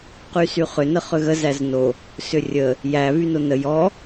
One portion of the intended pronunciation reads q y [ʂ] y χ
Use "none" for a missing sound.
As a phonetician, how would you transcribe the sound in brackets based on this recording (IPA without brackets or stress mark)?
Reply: s